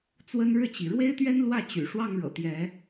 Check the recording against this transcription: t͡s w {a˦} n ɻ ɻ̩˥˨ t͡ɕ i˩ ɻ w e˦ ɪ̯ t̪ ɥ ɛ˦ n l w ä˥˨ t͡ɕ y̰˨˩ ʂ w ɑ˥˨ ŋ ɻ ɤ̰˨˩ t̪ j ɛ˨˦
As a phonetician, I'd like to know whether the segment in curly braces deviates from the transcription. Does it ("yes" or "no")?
yes